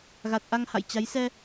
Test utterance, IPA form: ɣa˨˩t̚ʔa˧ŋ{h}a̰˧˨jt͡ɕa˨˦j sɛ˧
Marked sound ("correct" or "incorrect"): correct